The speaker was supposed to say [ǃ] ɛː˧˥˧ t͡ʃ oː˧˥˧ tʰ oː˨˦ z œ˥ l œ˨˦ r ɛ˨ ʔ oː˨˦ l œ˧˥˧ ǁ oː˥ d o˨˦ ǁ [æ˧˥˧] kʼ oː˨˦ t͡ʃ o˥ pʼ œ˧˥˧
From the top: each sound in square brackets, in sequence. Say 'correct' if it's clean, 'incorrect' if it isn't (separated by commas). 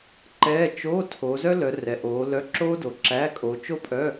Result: correct, correct